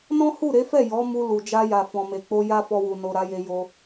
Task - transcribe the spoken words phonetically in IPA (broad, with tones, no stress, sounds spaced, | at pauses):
n ɔ̃˦ h u˦˨ ɾ e˨˦ f ɛ˦˨ j ɔ˨˦ m u˧ l u˨ d͡ʒ a˧ j a˨ f ɔ̃˨ m e˨ k͡p o˧ j a˦ f ɔ˧ w u˨ n o˨ ɾ a˨˦ j e˧ j o˧